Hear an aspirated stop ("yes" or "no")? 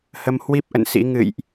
no